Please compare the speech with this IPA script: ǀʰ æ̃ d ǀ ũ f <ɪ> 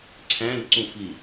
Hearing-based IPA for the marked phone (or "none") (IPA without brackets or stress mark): i